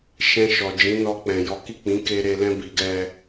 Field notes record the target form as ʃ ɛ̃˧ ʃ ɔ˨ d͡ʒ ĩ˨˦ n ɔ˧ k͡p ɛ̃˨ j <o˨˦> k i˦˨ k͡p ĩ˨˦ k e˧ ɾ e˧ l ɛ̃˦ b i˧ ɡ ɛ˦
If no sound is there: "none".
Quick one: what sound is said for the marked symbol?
ɔ˨˦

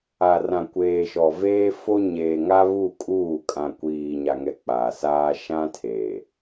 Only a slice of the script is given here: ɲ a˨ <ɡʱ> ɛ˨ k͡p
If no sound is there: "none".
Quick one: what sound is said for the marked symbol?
ŋ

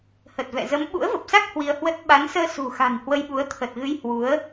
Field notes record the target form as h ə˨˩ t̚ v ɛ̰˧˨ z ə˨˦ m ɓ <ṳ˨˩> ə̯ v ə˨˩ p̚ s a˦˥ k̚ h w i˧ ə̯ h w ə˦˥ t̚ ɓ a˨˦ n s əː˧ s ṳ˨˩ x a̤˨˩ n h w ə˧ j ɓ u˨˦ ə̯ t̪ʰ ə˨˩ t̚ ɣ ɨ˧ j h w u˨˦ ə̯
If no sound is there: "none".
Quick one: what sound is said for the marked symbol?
ṵ˧˥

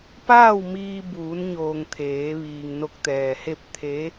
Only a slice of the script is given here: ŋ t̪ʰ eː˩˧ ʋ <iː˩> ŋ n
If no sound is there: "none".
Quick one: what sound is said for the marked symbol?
iː˩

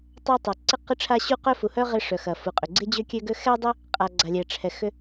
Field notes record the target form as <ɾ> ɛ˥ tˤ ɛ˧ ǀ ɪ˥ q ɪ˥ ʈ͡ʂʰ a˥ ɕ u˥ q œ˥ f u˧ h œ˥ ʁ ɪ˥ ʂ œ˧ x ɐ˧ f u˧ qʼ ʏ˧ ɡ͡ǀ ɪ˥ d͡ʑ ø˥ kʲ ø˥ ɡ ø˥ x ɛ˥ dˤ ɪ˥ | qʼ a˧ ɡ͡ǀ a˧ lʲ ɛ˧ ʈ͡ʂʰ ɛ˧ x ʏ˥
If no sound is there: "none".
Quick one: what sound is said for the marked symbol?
tˤ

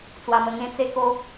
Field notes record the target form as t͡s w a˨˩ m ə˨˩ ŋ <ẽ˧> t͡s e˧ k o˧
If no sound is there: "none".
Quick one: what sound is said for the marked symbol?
ẽ˧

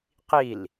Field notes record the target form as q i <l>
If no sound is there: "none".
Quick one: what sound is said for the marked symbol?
l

